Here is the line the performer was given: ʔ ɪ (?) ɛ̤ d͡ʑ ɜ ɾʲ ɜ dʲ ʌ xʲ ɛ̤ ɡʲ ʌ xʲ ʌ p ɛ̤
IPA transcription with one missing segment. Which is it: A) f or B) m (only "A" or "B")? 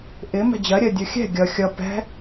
B